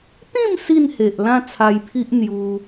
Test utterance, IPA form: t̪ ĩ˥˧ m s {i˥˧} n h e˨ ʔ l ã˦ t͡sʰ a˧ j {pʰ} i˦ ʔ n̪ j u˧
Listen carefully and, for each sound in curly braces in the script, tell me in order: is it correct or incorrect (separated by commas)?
correct, correct